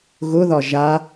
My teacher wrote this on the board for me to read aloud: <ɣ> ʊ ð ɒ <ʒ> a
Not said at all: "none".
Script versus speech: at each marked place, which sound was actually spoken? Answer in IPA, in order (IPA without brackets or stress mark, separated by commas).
ɣ, ʒ